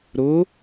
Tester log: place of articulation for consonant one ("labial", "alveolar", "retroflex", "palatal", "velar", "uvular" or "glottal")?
alveolar